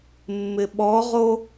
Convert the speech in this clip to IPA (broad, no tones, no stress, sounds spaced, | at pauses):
mː ɪ ɓ ɔ ʁ o